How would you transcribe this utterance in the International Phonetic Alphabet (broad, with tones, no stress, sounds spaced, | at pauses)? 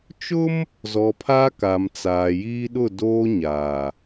t͡ʃ ʊ˦ m | z ɔ˨ pʰ a˦ k a˨ m t͡s aː˨ j iː˦ ɗ ʊ˦˨ d oː˦ ɲ aː˨